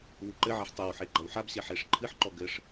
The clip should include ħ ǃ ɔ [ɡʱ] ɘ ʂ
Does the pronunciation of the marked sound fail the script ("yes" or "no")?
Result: yes